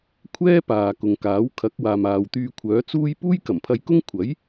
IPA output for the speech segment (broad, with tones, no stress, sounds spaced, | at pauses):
kʷʰ ɛː˥ p aː˨ k ʊ˨ ŋ k aː˨˥ w kʰ ɐ˨˥ k̚ w aː˨ m aː˨ w t̪ yː˧ kʷʰ œː˨˥ t͡s uː˥ j p uː˥ j k ɐ˨˩ m pʰ ɐ˧ j k ʊ˥ ŋ kʷʰ ɐ˨˥ j